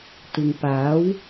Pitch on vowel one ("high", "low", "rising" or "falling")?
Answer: low